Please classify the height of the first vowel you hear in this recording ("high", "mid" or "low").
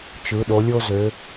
high